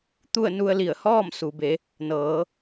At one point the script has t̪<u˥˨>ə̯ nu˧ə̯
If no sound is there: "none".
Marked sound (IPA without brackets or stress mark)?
u˥˨